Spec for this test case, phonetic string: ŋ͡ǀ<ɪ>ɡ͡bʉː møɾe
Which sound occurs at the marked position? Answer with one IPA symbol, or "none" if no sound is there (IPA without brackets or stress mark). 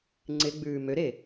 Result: ɪ